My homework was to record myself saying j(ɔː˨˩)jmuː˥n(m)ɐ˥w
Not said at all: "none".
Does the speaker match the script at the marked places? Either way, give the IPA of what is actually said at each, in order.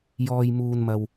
ɔː˥, m

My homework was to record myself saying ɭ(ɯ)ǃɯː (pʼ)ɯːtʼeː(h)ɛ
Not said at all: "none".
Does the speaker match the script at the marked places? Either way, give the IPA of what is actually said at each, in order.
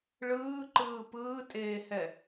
ɯː, p, h

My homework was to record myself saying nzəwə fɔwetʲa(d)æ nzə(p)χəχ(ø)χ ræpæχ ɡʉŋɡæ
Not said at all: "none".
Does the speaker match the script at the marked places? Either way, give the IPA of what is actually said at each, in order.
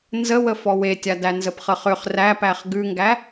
d, p, ø

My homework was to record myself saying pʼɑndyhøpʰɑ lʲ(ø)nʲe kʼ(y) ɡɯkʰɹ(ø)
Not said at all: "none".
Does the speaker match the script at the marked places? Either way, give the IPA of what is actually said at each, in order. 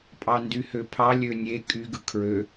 ø, y, ø

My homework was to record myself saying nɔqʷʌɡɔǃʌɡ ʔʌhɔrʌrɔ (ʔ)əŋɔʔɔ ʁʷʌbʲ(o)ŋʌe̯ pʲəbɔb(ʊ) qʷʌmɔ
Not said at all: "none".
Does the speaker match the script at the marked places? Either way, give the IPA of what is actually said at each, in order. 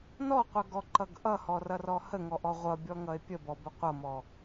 h, ɔ, ə

